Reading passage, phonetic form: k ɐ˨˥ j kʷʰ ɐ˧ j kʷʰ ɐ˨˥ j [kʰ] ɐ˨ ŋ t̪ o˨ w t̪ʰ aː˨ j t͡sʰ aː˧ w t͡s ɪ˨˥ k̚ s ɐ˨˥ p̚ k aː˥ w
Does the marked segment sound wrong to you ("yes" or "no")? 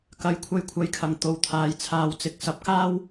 no